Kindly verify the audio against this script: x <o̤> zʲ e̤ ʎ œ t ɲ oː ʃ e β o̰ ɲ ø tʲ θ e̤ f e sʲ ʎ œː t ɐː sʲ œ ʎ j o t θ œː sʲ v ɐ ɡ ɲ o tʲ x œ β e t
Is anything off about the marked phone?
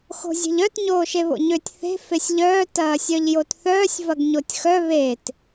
no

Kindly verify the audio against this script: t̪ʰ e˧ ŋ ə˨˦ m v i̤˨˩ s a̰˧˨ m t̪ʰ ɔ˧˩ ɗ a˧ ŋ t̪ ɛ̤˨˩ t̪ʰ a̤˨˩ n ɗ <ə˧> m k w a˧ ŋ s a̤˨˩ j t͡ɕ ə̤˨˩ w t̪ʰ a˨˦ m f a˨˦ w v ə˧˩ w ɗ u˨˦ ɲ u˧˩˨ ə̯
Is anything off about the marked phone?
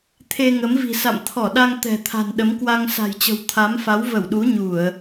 yes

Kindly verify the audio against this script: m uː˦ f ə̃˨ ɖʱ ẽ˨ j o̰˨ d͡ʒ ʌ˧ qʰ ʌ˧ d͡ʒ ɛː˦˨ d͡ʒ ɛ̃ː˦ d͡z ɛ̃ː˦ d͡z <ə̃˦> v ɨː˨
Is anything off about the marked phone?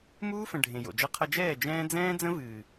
no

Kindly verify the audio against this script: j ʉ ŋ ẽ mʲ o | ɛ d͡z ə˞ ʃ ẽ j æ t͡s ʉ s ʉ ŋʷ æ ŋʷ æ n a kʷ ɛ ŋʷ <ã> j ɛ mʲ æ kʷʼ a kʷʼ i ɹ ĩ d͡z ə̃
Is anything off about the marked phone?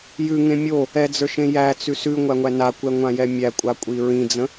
no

